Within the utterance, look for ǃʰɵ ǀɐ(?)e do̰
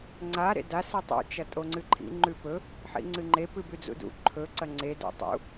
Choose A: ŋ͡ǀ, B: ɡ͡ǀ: A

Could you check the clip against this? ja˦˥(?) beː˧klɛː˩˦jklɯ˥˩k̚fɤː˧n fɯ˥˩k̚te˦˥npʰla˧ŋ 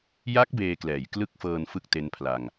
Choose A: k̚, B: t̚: A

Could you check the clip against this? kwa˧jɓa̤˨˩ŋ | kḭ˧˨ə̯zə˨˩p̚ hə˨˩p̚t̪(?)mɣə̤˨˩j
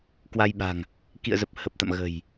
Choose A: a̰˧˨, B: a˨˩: A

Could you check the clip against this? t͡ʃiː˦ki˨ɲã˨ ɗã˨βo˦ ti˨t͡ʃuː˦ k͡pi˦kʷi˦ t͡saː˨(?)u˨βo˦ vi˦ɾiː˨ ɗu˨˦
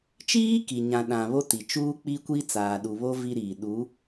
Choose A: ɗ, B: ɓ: A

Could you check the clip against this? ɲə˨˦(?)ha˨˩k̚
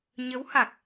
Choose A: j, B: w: B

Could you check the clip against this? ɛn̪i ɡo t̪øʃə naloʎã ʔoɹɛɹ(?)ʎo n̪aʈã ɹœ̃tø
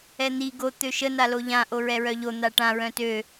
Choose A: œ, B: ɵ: A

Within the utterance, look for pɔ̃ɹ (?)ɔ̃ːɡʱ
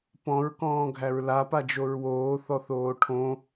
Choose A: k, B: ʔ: A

